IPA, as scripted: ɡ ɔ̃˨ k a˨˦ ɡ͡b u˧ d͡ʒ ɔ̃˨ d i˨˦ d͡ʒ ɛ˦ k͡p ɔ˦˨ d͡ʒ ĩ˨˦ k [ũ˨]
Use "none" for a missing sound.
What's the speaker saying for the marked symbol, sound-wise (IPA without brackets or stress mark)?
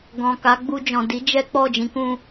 ũ˧